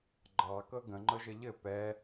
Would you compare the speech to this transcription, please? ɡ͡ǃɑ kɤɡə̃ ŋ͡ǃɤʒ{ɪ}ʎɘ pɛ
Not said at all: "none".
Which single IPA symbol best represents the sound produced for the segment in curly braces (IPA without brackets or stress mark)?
ə